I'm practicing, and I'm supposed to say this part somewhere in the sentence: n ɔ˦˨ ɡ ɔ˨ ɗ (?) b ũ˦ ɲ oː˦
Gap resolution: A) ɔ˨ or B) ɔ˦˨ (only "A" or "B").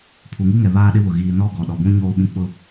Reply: A